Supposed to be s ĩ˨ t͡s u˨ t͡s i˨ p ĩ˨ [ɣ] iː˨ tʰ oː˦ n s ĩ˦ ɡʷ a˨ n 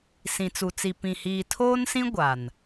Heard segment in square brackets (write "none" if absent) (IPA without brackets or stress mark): h